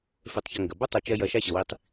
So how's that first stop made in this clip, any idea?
plain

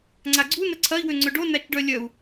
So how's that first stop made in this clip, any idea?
click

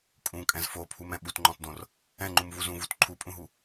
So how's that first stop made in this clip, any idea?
ejective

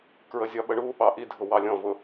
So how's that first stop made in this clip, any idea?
plain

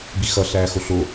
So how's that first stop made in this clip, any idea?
plain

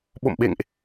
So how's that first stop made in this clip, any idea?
implosive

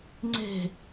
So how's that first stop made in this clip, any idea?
click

